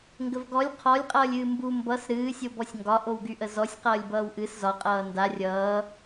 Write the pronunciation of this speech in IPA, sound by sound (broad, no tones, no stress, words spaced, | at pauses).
ŋɡəvɡɔlʲ qʰɔlʲqʼʌːlʲɨː mbu mbʌs ɾɨːsʲobɔsʲ ŋɡɒʔowɡyʔə zɔsʲ qʌːlʲbʌːwʔɨs zɒqʼʌː nda rʲʌː